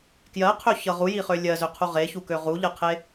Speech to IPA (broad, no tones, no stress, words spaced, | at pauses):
kjɜqʰøçʌ ʁujiχø lʲɜzøqʰu ʁeçukø ʁuʎɜqʰe